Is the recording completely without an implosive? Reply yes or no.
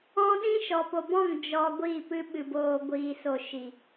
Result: no